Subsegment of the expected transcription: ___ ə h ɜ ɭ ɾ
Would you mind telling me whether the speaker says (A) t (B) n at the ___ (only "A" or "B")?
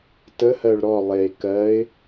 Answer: A